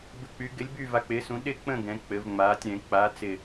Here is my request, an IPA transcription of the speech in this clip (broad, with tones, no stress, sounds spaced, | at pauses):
b ɪ˦˨ k͡p y˨˥ ɡ ɪ˨˥ lʲ b y˦˨ v a˨˥ k͡p ɪː˨˥ s ũ˨˥ ɗ ɪ˦˨ k͡p ə̃˦˨ ɡ ɛ̃˨˥ k͡p ɘ˨˥ v ŋ͡m aː˨˥ tʲ ɾ ɛ̃˨˥ k͡p a˨˥ t͡s ɪ˦˨